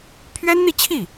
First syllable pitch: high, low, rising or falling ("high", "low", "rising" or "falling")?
high